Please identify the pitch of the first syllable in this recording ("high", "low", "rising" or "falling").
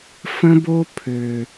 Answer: high